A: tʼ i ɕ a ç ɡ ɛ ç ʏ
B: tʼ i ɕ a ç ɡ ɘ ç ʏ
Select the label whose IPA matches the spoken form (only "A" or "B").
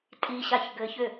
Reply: B